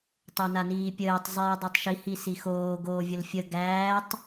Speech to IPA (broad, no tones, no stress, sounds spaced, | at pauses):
tˤ o n a n iː pʲ əː tˤ zˤ iː dˤ i tˤ ʃ i h i s i x oː ɡ oː vʲ ə l fʲ ə ɡ æː tˤ